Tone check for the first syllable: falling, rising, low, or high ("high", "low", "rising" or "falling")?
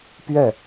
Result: falling